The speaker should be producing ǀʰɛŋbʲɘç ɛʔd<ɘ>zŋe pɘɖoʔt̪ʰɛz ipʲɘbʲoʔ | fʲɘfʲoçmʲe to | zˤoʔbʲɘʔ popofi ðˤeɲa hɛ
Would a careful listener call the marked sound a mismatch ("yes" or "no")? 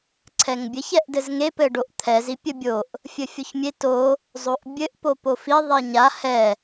no